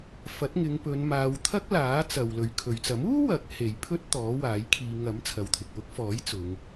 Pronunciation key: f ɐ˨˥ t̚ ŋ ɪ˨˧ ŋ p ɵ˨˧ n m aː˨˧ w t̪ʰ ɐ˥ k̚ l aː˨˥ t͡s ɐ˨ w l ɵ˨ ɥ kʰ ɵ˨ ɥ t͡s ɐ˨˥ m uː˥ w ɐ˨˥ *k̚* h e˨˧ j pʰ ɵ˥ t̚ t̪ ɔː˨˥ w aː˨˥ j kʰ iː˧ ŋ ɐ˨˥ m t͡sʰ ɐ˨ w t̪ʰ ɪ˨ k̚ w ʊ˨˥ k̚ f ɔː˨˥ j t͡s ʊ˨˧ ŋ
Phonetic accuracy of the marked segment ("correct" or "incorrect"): correct